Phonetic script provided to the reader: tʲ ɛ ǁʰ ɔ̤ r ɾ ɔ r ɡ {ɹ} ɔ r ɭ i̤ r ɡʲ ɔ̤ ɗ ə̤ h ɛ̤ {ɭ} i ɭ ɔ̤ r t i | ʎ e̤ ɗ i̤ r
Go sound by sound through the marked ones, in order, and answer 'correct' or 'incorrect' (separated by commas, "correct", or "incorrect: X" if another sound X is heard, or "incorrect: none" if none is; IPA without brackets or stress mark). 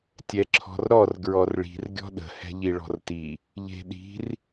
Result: correct, incorrect: ʎ